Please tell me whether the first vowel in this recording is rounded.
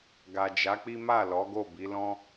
no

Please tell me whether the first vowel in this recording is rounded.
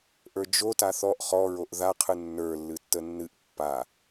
no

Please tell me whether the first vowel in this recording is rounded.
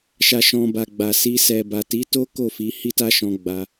no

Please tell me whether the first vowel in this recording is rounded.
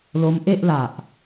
yes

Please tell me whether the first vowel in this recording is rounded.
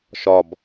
yes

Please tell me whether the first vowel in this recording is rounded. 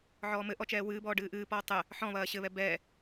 yes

